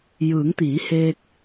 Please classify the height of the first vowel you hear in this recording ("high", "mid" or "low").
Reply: high